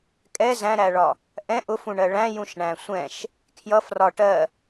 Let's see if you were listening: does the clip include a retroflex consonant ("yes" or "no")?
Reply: yes